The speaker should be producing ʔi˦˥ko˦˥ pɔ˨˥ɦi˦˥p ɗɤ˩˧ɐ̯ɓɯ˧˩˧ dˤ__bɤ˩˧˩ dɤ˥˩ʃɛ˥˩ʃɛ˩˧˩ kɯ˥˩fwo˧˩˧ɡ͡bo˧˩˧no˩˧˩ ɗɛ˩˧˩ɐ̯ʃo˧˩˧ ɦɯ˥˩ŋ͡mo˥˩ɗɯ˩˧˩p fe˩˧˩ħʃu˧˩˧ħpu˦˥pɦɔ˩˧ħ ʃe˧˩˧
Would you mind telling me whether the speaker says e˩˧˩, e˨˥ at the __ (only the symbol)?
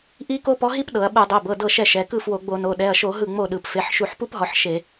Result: e˩˧˩